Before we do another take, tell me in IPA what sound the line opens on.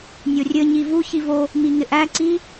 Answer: nʲ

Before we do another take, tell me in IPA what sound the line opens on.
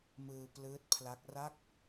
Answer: m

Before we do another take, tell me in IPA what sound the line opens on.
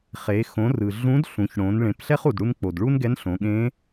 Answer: χ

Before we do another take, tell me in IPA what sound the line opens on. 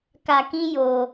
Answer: k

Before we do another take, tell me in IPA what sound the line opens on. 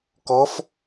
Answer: k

